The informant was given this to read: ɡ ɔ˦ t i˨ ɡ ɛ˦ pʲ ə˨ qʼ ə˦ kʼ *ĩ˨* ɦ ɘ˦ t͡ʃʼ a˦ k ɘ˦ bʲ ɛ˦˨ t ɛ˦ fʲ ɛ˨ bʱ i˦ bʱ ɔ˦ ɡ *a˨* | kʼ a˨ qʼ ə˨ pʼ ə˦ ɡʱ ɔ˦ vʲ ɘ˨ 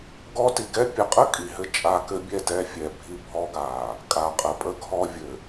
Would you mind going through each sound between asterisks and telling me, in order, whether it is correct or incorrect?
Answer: incorrect: i˨, correct

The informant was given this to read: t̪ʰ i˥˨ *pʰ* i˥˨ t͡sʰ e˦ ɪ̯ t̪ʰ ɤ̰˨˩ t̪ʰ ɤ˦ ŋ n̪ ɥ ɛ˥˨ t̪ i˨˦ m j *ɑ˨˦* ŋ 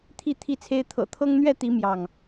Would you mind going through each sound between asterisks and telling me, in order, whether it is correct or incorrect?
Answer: incorrect: t̪ʰ, incorrect: ɑ˥˨

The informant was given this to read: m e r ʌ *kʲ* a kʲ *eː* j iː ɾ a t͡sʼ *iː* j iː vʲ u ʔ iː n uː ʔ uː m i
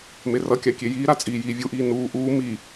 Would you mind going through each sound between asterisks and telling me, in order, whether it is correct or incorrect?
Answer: correct, incorrect: e, correct

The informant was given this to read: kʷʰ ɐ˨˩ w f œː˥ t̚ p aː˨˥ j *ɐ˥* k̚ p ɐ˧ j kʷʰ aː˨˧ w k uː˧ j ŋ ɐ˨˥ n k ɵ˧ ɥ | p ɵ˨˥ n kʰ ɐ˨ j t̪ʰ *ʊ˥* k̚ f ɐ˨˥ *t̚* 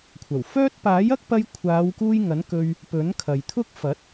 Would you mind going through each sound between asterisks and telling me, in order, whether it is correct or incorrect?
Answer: correct, correct, correct

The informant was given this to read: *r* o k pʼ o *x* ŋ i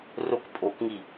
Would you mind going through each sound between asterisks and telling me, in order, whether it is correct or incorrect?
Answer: correct, incorrect: k

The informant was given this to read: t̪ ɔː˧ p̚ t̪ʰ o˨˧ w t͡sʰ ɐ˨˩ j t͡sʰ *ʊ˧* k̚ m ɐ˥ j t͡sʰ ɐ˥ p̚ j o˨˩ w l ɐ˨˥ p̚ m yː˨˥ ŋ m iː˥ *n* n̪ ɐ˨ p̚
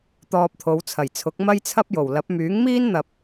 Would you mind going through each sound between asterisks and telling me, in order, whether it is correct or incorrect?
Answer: incorrect: ʊ˨˥, correct

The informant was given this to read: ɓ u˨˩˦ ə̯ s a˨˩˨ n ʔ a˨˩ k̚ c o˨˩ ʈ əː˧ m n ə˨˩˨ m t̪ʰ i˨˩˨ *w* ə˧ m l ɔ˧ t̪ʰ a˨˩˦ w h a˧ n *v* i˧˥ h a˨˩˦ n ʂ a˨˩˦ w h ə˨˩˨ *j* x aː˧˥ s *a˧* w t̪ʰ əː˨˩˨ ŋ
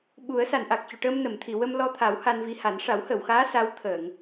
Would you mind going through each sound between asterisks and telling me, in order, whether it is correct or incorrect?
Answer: correct, correct, incorrect: w, incorrect: a˧˥

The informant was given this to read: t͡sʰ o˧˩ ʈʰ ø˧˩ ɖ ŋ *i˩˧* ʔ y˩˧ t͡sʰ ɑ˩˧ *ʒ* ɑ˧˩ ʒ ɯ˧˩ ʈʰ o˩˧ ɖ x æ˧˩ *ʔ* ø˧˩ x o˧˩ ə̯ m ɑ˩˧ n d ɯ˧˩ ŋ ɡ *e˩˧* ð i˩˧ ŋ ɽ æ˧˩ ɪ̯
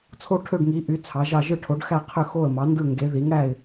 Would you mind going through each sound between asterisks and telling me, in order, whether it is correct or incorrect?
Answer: correct, correct, incorrect: qʰ, correct

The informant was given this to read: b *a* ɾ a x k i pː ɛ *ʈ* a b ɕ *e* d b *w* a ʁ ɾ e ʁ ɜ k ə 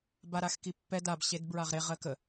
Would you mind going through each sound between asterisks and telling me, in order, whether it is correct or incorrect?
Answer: correct, incorrect: d, correct, incorrect: ɹ

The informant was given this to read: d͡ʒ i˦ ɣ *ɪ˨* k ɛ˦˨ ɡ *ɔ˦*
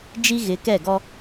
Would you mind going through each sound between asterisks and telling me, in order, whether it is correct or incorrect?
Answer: incorrect: ɪ˨˦, correct

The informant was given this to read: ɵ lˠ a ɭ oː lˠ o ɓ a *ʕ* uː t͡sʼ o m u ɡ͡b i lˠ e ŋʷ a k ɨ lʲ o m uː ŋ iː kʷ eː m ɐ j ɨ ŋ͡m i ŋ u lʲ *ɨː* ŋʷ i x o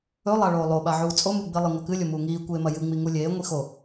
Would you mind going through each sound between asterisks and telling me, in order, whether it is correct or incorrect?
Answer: correct, incorrect: eː

